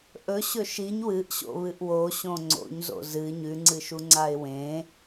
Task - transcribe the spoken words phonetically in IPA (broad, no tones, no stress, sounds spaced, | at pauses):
ʔ ɵ ɕ ɵ ʃ i ɲ w ɨ ʔ ɕ o̰ β ɨ ʔ w o ɕ õ ŋ͡ǀ o̰ ɲ z o̰ z ɨ ɲ ʉ ŋ͡ǀ ɨ ʃ u ŋ͡ǀ a ɪ̯ w ẽ